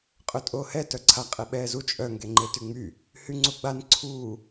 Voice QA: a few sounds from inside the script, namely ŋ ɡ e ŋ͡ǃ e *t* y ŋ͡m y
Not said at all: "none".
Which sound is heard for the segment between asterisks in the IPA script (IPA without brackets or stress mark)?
t